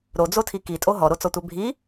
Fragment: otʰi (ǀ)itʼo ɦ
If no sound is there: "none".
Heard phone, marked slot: k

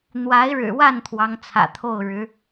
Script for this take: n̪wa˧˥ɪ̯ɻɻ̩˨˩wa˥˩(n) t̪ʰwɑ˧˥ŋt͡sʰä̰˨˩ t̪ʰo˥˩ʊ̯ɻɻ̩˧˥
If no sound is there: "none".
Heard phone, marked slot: n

